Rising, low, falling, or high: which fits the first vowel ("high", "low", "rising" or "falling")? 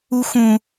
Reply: high